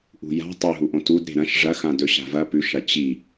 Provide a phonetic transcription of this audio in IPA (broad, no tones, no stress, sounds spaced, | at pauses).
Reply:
ʔ ṳ j a̤ tˤ ɵ ɦ u ʔ õ t u d ɾ e̤ ɾ ɐ̃ ʃ ʐ ɐ x ã d ɵ ɕ a̤ v ɐ p ʉ ʃ ɐ t͡ɕ i